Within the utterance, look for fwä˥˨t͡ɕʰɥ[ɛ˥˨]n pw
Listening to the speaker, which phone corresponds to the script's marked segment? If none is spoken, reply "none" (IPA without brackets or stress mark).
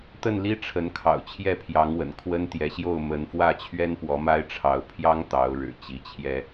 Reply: ɛ˦